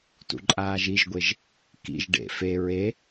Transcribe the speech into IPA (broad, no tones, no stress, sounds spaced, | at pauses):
t ṵ ǃʼ aː ʒ i ʒ ɡʷ e ʒ | k ḭ ʒ ɖ ḛ f e ɹ e